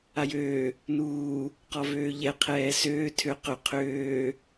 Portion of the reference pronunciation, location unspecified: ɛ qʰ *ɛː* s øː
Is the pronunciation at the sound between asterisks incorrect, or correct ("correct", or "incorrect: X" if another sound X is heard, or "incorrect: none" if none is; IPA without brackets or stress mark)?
correct